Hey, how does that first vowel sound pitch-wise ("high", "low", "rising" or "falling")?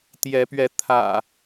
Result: rising